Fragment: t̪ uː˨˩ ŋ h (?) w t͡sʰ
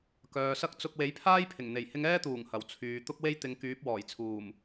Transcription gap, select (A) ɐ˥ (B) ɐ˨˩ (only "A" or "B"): B